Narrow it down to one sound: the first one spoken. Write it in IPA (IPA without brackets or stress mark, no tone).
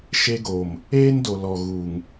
ʃ